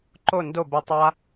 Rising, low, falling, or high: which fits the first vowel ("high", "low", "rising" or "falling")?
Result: falling